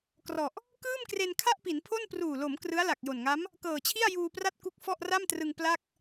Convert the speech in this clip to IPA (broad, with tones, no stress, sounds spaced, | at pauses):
k r ɔ˨˩ ʔ | k ɯː˥˩ m k r e˧ n kʰ a˥˩ ʔ p i˩˦ n pʰ o˥˩ n p r uː˨˩ l o˩˦ m k r ɯ˦˥ a̯ l a˨˩ k̚ j o˨˩ n ŋ a˦˥ m | k ɤː˨˩ t͡ɕʰ i˥˩ a̯ j uː˧ p r a˥˩ t̚ k u˦˥ k̚ f ɔ˥˩ ʔ r a˥˩ m t r ɯ˧ ŋ p l a˥˩ k̚